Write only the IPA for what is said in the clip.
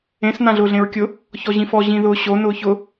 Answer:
ẽ s n ã ɮ ʊː ɮ ẽ ɹ kʲ ʊ | ç ɔ ʑ ĩ f ɔ ʑ ĩ ð ʊː ɕ o n ʊː ç ʊ

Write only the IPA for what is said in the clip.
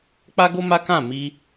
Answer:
k͡p a˦ ɡ o˦ m a˦ k ã˦˨ m i˧

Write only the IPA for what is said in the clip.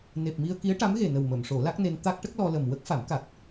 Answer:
n e˨˩ p̚ m i˧ ə̯ k i˧˥ ə̯ ʈ a˧˥ m ɣ e˨˩ n ə˨˩ w m ə˨˩˨ m ʂ o˨˩˦ l a˦˥ k̚ n e˧ n t̪ a˦˥ k̚ ʈ ə˦˥ k̚ l ɔ˧ l ə˨˩ m w ə˦˥ k̚ f a˨˩˦ m k a˨˩ k̚

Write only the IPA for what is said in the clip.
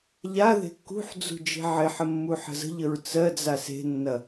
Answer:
ʎ a ð e̤ kː ṳ ħ d͡z ṳ d͡ʒ e̤ ʕ ɪ ħ ə mː u ħ ə̤ z ə̤ ʎ ə ɹ t͡s ɜ d͡z a s e̤ nː ɐ

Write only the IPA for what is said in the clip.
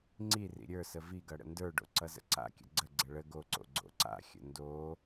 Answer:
ŋ͡ǀ i r ḭ ɾʲ ə˞ s ə v i ɡ ʌ ɽ ə̰ n d ə˞ ɖ o̰ ǀ ʌ z ə̰ ǀ a̰ kʲ ə̰ ɡ͡ǀ ə ɡ͡ǀ ə ɭ ə ɡ o ǀ o̰ ɡ͡ǀ o̰ ǀ a̰ xʲ ə̰ n d o

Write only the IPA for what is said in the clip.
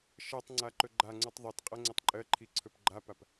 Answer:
ʃ ɜ tˤ ŋ͡ǀ a ǃ ɵ ɡ͡ǃ a ŋ͡ǀ u tˤ ðˤ i t qʼ ɜ ŋ͡ǀ e tˤ ǃʼ ɜ ǃʰ i ǀʰ ɵ p ɡ͡ǃ a p a p

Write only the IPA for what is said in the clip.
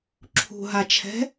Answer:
ǁʰ ṳ ɦ a t͡ʃʰ ɛ̤

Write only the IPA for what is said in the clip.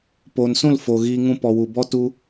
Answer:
p oː˨ n s ũ˦˨ l f o˨ ɣ iː˧ ŋ ũ˧ p ɔ˨ w u˨ b ɔ˦ t u˧

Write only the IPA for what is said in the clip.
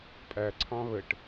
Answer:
pʼ æ ǀʰ ɑ̃ β ə ʈ

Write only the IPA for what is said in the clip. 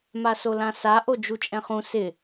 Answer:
m a s o l ã s a ʔ o d͡ʒ u t͡ʃʼ ɛ̃ χ ũ s ɪ

